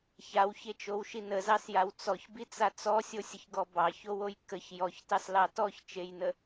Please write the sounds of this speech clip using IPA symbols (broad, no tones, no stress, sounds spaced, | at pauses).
ç a w ç e t͡ʃ o w ʃ i n ə z ɑ s j a w t͡s ɔ ç b i t͡s a t͡s ɔ sʲ o sʲ ə ç ɡ ɔ b ɑ ç o w o j k ə ç j ɔ ç t ɑ s l ɑ t ɔ ç t͡ʃ e j n ə